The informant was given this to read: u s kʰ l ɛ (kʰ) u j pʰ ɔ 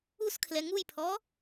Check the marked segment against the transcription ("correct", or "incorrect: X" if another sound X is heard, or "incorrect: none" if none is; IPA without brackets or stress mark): incorrect: ŋ